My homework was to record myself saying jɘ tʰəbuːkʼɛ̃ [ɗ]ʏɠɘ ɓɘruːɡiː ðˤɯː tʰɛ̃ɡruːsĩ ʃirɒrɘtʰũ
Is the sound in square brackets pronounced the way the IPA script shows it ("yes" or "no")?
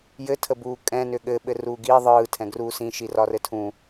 no